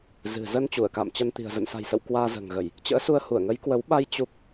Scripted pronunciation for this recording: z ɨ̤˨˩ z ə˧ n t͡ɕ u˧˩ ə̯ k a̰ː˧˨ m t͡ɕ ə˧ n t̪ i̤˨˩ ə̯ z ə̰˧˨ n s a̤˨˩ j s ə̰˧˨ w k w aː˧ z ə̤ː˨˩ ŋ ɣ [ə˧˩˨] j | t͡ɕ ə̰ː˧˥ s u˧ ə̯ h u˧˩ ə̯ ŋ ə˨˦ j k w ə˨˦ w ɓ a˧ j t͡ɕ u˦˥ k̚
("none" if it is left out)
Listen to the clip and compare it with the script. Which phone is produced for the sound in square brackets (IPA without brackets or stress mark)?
ə˧˩˨